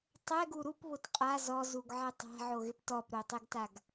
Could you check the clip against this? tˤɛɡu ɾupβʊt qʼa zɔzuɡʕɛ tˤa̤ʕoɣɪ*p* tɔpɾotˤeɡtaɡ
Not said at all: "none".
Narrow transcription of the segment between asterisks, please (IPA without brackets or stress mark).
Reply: p